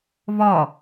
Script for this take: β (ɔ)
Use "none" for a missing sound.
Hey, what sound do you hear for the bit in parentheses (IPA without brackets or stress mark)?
ɔ